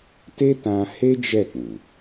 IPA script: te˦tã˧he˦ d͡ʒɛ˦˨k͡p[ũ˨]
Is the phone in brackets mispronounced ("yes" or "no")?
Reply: no